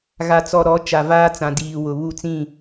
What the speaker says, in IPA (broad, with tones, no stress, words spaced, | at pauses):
ɣa˨t͡sɔ˨ɾɔ˨˦ t͡ʃa˨vaː˦t͡sã˨diː˨ wʊ˨ βu˦˨t͡sĩ˦˨